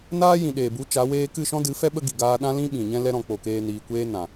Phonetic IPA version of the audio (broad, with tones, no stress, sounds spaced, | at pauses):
n aː˦ j ĩ˨ ɗ eː˨ b u˨˦ t͡ʃ a˨˦ w eː˦ k ɨ˦˨ ʃ ɔ̃˦ d ɨ˨˦ f ɛ˦ ɓ ə˦ ɡ i˨ ɡ aː˧ ɗ ã˦ l ĩ˦ ɓ ĩ˨ ɲ ɛ̃˦ l ɛ˦ ɾ ɔ̃˧ k͡p o˨ k eː˧ n iː˨ kʷ eː˦ n ã˨